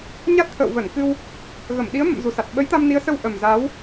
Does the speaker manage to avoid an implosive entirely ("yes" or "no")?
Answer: no